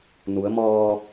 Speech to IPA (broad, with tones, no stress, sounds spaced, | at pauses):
n u˩˧ ə̯ m ɔː˧